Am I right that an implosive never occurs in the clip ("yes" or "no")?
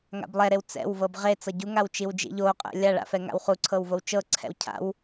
yes